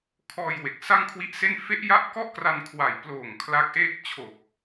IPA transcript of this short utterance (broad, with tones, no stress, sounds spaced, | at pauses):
kʰ ɔː˧ j w e˨˩ k̚ s a˥˩ ŋ kʰ w i˦˥ ʔ s e˥˩ n f e˦˥ ʔ j a˦˥ ʔ k ɔ˥˩ ʔ k r a˧ n kʰ w a˨˩ j p l oː˨˩ ŋ kʰ l a˦˥ k̚ ʔ eː˥˩ k̚ t͡ɕʰ o˨˩ k̚